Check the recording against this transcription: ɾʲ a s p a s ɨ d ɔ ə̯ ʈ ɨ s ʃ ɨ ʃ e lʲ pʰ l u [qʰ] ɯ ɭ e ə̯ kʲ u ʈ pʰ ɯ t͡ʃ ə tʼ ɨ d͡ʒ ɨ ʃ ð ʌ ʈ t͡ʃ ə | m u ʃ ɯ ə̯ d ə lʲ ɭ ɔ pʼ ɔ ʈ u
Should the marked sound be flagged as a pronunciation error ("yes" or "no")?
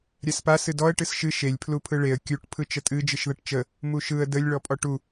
yes